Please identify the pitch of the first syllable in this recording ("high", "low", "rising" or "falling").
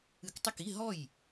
rising